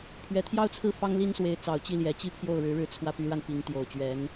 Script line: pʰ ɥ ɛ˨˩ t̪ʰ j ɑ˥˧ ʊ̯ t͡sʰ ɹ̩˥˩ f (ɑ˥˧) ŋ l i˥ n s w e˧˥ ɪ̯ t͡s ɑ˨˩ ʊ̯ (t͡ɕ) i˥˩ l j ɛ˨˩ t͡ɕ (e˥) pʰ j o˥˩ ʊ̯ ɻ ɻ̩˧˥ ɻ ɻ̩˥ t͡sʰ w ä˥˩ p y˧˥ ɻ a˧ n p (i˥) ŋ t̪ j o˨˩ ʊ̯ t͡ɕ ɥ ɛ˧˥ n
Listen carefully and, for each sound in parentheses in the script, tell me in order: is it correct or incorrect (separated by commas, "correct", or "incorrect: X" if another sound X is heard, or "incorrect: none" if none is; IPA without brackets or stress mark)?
incorrect: ɑ˥, correct, incorrect: i˥, incorrect: i˧˥